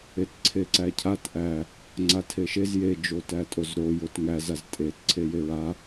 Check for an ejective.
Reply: present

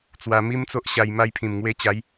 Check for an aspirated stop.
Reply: present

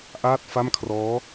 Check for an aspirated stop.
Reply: present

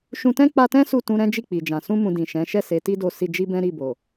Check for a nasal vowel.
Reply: present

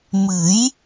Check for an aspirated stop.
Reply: absent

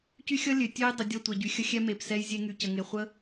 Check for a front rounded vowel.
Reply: present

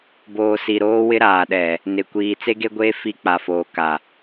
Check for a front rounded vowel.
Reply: absent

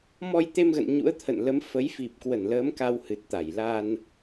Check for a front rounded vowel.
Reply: absent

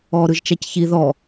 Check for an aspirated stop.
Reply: absent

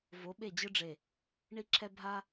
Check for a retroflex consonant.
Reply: present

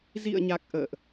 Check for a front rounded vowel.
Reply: absent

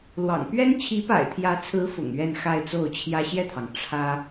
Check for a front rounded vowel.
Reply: absent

